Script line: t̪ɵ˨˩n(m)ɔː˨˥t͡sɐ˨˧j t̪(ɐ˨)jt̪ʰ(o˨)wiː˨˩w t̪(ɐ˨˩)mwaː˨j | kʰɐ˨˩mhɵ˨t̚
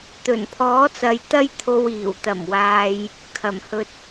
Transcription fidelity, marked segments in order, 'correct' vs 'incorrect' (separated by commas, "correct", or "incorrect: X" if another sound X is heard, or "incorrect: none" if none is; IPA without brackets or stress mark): incorrect: pʰ, incorrect: ɐ˥, incorrect: o˧, correct